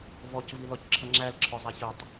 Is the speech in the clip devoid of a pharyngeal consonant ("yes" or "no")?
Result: yes